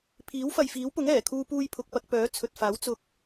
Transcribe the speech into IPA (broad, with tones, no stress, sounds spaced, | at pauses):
pʰ iː˨˥ w f ɐ˨ j f iː˨˥ w p ʊ˨˥ ŋ ɛː˨˩ kʰ uː˧ p uː˧ j pʰ ʊ˨ k̚ p ɐ˧ k̚ p œː˨˥ t͡sʰ ɵ˨ t̚ f aː˨˥ w t͡s ʊ˧ k̚